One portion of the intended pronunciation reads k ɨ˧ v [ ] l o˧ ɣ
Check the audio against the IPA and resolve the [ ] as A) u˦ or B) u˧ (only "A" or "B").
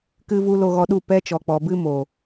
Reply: B